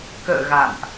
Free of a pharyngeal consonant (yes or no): yes